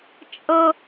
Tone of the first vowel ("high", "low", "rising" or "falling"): high